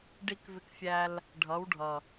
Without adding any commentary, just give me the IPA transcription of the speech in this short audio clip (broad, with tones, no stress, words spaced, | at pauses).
ɖi˧k vɪ˧kfʲæ˧l | ɖʱʌ˨˦wɖʱʌ˨